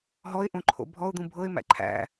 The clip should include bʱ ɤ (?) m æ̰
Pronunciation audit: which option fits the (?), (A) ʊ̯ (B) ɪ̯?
B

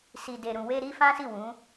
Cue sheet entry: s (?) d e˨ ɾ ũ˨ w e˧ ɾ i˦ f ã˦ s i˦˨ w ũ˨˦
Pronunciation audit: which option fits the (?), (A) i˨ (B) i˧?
A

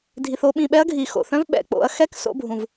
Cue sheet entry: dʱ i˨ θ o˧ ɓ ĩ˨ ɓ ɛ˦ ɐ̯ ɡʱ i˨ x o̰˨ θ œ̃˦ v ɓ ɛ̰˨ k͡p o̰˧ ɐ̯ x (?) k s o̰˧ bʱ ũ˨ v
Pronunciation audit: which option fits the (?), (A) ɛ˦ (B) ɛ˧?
A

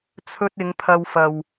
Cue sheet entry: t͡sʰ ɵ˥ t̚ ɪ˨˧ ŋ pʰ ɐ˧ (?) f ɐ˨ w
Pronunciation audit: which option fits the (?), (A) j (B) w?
B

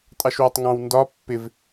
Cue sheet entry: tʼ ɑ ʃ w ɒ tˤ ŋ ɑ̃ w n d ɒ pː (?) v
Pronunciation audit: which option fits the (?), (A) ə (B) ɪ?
B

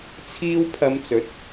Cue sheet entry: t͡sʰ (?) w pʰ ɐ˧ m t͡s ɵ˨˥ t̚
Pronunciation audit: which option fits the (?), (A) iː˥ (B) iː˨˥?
A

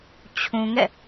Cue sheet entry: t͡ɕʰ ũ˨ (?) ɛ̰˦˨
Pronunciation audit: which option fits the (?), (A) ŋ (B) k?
A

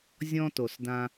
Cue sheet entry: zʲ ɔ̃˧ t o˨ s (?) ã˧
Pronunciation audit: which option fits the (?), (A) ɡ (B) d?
B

